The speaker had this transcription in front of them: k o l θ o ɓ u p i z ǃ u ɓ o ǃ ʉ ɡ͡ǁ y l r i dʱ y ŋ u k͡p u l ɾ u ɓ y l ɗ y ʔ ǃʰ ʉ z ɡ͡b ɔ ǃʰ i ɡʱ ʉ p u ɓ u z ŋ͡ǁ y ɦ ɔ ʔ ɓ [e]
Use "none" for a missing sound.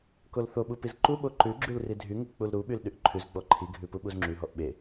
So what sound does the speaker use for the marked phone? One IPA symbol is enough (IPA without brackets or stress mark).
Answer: e